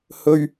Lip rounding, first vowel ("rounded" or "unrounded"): rounded